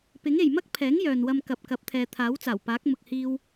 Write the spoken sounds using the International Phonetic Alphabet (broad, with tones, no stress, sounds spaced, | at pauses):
p ɪ˨˥ ŋ e˨ j m ɐ˥ k̚ pʰ ɛː˨˥ ŋ j œː˨ n w ɐ˧ m k ɐ˨ p̚ k ɐ˨˥ p̚ t̪ʰ ɛː˨ t̪ʰ aː˨˥ w t͡s aː˨˩ w p aː˨˥ k̚ m ʊ˨ k̚ h iː˧ w